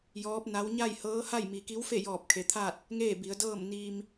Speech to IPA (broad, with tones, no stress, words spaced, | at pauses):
jɔː˧˥p̚na˧˥w ɲa˥˨jhɤː˧˥ha˥˨j mi˩ki˧˥wfe˥˨jɔː˧˩p̚ kʰe˩t̪ʰaː˥˨t̚ | ŋeː˥˨bi˩˧ə̯dɤː˥˨m niː˧m